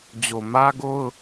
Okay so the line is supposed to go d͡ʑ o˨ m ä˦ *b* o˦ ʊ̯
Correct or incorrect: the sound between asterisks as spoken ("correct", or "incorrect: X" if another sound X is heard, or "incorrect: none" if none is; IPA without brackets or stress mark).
incorrect: ɡ